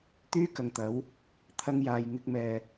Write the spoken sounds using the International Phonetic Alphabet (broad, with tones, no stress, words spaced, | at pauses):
t̪yː˥ kɐ˨ŋt̪ɐ˨˥w | t̪ʰɐ˥ŋjaː˧j ŋɪ˥k̚mɛː˧